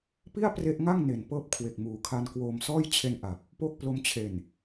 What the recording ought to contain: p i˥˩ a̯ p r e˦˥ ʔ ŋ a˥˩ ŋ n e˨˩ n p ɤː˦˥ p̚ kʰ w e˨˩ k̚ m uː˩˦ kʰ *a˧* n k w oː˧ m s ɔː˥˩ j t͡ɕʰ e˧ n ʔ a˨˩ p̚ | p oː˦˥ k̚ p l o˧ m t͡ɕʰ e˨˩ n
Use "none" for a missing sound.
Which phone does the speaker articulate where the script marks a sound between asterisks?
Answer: a˧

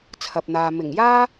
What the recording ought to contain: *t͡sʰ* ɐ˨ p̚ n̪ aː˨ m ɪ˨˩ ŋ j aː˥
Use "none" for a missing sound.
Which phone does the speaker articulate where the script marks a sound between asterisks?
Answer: t͡sʰ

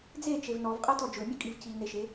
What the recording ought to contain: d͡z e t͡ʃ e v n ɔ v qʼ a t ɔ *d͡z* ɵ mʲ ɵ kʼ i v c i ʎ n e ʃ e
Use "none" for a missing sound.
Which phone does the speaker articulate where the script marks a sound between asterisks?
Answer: d͡ʒ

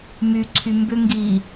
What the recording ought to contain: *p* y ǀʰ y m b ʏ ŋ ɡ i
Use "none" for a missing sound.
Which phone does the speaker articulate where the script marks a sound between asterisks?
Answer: m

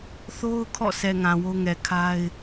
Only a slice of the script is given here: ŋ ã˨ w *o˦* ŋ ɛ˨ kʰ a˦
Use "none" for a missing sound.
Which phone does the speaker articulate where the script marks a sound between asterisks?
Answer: o˦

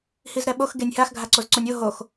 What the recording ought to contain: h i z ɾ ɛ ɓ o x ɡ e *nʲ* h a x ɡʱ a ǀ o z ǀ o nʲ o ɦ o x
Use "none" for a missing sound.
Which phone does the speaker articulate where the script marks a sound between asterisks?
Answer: nʲ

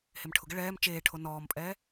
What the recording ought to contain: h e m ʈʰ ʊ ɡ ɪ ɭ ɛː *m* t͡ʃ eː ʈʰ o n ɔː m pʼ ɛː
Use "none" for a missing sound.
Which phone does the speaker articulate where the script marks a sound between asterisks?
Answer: m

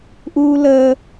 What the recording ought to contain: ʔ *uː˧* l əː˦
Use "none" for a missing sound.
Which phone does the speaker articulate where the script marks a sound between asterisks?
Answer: uː˧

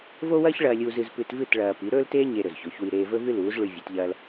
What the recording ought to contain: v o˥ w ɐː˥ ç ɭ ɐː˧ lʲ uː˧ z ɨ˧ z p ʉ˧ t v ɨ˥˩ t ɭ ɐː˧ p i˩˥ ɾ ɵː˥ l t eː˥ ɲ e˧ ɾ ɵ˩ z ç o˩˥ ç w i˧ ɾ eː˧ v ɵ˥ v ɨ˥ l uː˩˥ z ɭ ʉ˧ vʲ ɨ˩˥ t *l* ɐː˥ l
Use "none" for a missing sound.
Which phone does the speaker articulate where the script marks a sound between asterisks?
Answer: ʎ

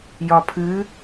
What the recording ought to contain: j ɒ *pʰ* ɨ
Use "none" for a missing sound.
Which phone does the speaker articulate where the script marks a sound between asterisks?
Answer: pʰ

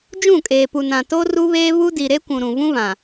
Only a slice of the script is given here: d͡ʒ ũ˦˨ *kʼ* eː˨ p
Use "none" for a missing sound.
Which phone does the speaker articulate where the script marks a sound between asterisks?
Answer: kʼ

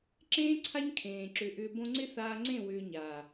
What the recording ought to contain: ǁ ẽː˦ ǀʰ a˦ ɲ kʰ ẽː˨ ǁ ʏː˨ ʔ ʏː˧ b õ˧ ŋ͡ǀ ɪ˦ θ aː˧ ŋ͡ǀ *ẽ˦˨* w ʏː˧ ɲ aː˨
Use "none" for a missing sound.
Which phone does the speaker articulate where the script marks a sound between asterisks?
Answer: ẽ˦˨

